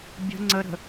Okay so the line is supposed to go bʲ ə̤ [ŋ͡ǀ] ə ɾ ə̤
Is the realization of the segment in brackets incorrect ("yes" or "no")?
no